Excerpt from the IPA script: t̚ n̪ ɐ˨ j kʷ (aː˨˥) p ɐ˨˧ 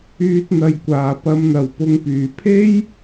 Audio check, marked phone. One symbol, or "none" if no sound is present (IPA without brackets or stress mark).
aː˨˩